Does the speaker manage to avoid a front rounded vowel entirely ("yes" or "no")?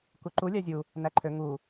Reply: no